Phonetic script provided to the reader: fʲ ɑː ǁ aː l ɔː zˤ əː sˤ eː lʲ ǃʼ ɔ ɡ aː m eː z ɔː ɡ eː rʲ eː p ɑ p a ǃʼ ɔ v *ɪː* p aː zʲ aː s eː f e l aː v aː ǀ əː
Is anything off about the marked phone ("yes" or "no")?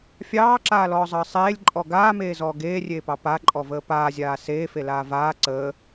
yes